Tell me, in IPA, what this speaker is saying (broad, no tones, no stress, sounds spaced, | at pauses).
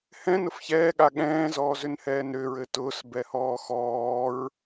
h ɛ̃ n ʊ f ç ɛː ɠ a ɠ ɛ̃ː z ɔː z ʏ n h ɛː n ɾ ʏ ɹ ɘ t ʊː s b ɛ h ɔː x ɔː ɹ